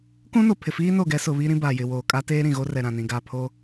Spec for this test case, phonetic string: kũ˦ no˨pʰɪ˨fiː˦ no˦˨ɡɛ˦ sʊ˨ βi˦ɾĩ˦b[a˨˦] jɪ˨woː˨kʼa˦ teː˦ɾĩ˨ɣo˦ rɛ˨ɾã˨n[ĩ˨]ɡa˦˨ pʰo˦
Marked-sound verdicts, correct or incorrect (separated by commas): incorrect, correct